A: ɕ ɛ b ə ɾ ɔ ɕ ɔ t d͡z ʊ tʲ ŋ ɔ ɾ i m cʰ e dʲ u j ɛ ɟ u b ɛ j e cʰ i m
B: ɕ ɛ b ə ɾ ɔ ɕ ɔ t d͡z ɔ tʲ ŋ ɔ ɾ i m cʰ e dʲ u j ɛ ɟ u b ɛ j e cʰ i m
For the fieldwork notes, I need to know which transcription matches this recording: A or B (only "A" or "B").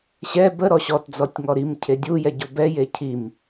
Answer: B